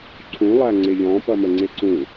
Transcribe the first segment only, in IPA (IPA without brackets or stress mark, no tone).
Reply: ǀʰ